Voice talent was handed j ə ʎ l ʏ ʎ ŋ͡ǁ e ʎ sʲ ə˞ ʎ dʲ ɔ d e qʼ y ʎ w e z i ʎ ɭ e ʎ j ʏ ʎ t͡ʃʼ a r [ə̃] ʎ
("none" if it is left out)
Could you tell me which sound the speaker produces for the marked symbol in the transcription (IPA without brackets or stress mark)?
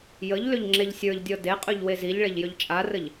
ə